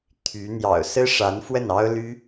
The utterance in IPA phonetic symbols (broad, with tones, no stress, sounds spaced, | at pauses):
t̪ʰ y˧˥ n̪ j ɑ̰˨˩ ʊ̯ s ɹ̩˥ ʂ a˧˥ n f w ə˥˩ n ɑ˥ ʊ̯ l y˥